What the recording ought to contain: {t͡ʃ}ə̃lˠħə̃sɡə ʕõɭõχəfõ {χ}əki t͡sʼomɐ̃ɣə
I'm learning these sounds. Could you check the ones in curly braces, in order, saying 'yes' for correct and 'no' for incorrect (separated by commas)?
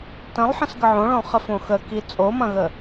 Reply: no, no